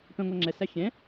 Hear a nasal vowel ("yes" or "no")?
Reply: yes